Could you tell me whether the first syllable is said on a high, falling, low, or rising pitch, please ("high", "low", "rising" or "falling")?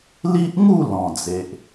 high